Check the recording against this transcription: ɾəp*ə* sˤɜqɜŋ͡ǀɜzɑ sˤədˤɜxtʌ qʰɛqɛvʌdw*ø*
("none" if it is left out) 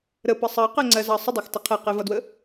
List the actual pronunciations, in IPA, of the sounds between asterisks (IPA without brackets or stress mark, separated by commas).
ə, ə